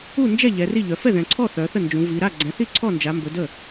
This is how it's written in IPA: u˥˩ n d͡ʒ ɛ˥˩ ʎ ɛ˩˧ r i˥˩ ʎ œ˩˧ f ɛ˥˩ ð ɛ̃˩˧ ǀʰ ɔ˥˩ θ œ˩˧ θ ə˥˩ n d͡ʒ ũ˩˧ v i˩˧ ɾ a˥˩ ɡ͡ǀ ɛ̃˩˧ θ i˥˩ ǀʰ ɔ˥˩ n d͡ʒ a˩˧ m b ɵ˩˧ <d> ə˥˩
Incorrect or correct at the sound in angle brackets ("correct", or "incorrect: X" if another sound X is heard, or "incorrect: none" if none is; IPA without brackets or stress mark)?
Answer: correct